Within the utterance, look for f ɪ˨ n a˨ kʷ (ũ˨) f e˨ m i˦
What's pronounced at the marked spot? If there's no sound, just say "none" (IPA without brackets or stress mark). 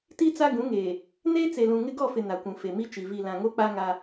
ũ˨